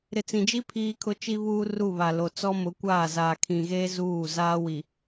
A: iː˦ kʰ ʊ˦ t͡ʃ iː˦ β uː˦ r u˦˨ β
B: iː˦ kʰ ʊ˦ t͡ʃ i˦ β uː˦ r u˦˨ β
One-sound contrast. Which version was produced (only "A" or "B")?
B